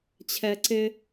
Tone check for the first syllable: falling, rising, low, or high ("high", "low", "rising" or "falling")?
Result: high